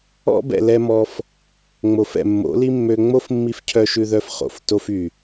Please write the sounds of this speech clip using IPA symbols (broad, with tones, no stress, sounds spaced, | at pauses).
ɔ̰˦ b ɛ̰˨ l ɛ˦ m ɔ˧ f | ŋ͡m o˨ f ɛ̰˨ mː o̰˨˦ l i˦ mː ø˧ ŋ͡m o˦ f mː i˧ f cʰ œ˧ ʃ ʉ˧ ð œ˧ f χ o̰˨ f t o˦ f y˨